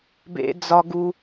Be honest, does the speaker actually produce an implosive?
no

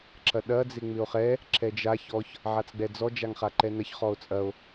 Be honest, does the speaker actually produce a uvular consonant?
yes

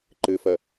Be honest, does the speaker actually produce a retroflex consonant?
no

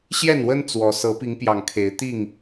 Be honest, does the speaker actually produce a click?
no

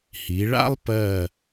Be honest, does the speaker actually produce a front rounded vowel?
no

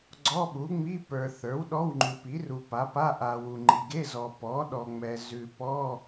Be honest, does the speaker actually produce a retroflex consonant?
no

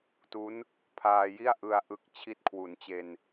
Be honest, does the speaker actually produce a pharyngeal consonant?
no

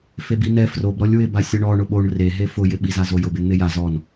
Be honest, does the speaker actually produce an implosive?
yes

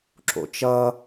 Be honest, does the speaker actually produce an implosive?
no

